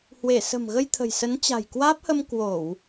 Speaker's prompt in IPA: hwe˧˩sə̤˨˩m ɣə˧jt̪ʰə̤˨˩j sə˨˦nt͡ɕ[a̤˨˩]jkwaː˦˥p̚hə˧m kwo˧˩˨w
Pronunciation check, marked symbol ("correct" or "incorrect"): correct